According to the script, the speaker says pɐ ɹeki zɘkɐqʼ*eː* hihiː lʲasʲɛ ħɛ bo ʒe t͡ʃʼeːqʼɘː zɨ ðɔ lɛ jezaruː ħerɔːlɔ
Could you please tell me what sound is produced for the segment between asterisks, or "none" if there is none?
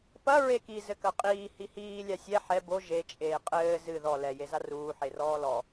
iː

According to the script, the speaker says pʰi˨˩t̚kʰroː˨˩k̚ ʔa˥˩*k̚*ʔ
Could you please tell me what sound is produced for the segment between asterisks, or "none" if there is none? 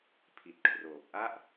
none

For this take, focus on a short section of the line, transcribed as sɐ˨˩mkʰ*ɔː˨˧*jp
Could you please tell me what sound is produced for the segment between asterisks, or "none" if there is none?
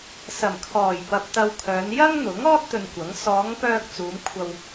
ɔː˨˩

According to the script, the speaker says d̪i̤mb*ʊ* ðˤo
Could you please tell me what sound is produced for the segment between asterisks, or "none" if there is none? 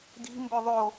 ɵ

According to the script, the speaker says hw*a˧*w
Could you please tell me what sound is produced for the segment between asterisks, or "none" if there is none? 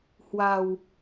a˧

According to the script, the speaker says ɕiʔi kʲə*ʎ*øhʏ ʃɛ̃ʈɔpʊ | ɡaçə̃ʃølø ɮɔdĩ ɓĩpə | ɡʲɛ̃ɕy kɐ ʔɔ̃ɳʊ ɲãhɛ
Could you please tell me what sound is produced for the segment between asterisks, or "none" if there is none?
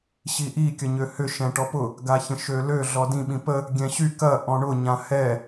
ɲ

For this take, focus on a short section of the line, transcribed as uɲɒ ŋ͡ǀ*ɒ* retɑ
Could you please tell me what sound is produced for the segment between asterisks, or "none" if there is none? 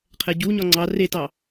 ɑ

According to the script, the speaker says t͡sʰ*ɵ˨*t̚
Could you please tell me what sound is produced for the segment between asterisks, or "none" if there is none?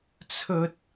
ɵ˥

